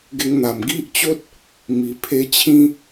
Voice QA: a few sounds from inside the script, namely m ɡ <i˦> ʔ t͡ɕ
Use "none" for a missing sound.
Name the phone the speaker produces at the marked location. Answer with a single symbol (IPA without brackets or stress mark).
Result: i˦